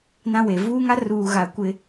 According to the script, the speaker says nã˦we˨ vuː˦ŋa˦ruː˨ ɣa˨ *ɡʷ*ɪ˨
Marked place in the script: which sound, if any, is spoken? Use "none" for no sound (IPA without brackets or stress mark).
kʷ